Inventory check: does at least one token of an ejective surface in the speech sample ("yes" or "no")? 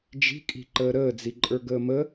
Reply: yes